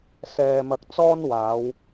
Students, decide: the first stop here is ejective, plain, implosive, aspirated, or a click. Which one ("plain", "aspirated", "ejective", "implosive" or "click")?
plain